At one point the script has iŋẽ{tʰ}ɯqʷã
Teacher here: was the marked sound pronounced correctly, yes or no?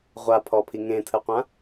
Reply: yes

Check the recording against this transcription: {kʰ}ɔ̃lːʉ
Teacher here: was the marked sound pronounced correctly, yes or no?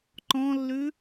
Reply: no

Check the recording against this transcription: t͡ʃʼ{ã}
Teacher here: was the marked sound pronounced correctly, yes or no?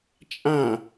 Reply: yes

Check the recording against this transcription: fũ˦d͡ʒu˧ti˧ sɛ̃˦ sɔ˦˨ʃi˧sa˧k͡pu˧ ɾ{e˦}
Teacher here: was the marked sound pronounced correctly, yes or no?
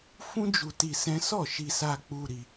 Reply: no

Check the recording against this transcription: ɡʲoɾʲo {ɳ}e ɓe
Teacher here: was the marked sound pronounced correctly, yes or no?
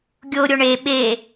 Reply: yes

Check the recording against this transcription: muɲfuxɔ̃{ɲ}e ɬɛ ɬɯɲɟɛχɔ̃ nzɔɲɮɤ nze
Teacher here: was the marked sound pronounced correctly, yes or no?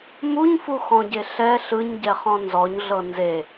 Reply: no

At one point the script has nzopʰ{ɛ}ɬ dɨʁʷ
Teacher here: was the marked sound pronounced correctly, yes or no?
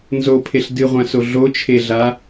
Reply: no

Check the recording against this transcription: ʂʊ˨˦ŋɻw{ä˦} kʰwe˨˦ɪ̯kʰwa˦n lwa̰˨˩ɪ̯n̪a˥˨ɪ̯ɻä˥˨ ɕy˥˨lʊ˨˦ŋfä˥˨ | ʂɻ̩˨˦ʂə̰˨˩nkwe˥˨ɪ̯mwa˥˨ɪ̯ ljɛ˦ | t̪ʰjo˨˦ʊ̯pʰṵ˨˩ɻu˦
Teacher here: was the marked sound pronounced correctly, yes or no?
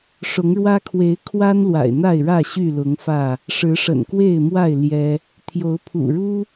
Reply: yes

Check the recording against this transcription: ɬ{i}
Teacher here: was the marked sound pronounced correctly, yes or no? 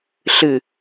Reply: no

